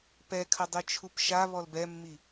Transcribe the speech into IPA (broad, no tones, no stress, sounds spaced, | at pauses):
p ɛ kʰ ɐ dˤ i t͡ʃʰ u p ʃ a β ɔ l b ɛ mː i